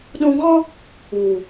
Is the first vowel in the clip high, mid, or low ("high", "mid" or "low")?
high